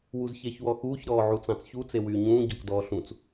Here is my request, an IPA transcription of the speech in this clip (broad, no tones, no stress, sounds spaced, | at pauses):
w u z ç e ç w ɔ x uː ç ɾ ɔː ʕ u t͡s ɑ̃ t͡s ç u t͡s e w yː ɲ ũː ɟ ɔ k d ɔː ɬ ũ t͡s